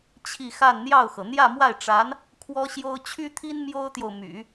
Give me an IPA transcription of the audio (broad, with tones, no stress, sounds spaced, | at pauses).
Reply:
t͡ɕʰ i˥˧ x a˥˧ n n̪ j ɑ˥˩ ʊ̯ x ɤ˩ n̪ j ä˥˧ m w a˥˩ ɪ̯ ʈ͡ʂ a˧˥ n | kʰ w ɔ˥ ɕ j o˥ ʊ̯ t͡ɕʰ y˥ t̪ʰ i˥ n m j o˥ ʊ̯ t̪ j o˨ ʊ̯ m y̰˨˩˦